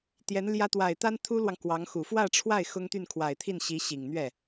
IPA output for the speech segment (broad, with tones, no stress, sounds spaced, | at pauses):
t̪ j ɛ˧˥ n l j ä˥ t̪ w a˨˩ ɪ̯ t̪ a˥ n t̪ʰ u˥ l w ɑ˨ ŋ k w ɑ˧˥ ŋ x u˨˩ f w ä˥˧ ʈ͡ʂʰ w a˥˩ ɪ̯ x ʊ˥ ŋ t̪ y˥˩ n kʰ w a˨˩ ɪ̯ t̪ʰ i˥˩ n ɕ i˧˥ ɕ i˨˩ ŋ n̪ ɥ ɛ˥˩